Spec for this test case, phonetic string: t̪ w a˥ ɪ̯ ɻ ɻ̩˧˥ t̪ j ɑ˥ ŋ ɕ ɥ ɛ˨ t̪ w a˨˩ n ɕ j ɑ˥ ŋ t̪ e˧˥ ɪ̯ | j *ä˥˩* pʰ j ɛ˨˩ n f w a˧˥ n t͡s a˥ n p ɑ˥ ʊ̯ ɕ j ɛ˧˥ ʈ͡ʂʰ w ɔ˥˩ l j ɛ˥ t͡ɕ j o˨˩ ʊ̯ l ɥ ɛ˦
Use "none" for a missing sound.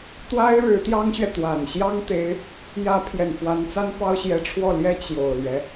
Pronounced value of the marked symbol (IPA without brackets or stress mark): ä˧˥